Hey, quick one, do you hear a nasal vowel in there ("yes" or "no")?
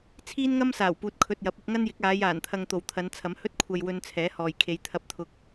no